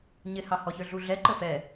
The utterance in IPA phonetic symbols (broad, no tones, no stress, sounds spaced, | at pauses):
ɲ ɪ h ɑ h ɔ ç ə˞ ɮ u ɮ ɛ ǃ ə f ɛ